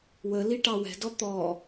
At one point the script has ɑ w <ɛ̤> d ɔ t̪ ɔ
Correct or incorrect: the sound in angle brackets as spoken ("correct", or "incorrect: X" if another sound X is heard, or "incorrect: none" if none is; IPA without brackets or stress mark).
correct